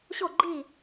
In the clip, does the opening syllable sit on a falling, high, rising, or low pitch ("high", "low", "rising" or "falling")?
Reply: falling